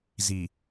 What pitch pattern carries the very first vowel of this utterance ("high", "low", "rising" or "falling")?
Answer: low